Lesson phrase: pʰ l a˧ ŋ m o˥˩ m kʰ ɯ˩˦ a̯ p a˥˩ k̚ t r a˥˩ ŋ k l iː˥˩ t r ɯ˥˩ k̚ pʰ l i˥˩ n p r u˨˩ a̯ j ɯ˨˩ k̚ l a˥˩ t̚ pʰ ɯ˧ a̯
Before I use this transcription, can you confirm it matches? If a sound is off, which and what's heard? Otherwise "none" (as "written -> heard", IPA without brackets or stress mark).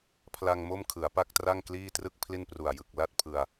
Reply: none